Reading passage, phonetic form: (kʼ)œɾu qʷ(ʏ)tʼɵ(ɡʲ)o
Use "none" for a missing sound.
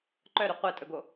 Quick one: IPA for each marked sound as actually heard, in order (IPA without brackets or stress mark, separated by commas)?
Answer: ǃ, ɛ, ɡ